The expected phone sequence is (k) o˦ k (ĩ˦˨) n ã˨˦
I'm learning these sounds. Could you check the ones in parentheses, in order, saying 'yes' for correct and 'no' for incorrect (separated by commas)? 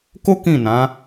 yes, yes